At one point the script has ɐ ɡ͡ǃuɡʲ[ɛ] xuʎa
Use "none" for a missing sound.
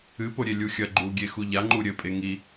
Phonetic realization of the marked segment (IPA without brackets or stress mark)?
e